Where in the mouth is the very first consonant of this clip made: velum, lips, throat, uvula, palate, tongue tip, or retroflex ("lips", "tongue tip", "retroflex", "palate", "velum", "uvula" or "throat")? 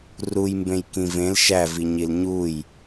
tongue tip